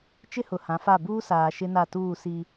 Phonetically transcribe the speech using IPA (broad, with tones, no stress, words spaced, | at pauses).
t͡ʃɪ˦hʊ˨hã˨˦fa˦˨ buː˦saː˨ ʃɪ˦na˦˨tuː˦˨ si˦